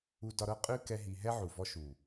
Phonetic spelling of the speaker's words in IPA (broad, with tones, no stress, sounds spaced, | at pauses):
u˧ d ɒ˧ ɾ ɤ˦ qʼ ʉ˦ k ɛ˦ ɦ i˧ ɦ ɛ˦ ʕ u˨ v ɔ˧ ʃ u˨